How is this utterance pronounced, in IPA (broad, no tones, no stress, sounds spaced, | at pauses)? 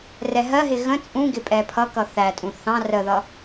r ɛ ɦ ɜ ɦ ɪ ɣ ə̃ t͡sʼ ũ ɡ ɪ pʼ ɛ pʰ ʌ k ʌ θ æ tʼ ũ θ ɑ̃ r ə ð ʌ